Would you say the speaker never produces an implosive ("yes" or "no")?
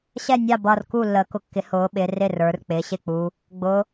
no